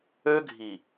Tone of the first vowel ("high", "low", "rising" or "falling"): high